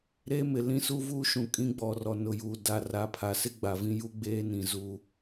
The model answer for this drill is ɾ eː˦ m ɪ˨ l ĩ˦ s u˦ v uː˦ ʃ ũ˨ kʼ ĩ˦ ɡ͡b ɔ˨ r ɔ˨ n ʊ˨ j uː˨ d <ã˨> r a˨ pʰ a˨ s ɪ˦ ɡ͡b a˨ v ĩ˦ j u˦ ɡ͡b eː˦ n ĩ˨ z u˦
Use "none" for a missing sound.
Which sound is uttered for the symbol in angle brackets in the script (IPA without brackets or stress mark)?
a˨